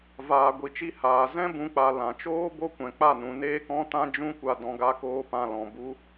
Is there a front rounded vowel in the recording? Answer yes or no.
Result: no